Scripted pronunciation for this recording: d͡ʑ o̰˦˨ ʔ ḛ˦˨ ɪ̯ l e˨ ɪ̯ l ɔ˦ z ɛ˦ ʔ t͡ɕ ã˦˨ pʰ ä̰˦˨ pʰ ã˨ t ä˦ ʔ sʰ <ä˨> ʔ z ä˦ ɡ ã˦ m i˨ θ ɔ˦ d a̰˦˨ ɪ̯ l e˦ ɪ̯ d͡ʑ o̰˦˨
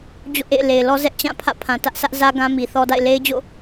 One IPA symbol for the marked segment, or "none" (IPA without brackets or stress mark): ä˦